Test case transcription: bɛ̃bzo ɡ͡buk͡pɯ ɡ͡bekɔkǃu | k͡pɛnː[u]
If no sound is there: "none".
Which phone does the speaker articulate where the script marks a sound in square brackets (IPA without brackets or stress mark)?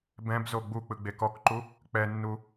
u